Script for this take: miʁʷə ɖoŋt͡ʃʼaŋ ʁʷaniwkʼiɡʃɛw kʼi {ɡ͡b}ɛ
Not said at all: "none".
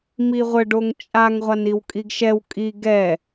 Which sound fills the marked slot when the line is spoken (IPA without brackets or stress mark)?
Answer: ɡ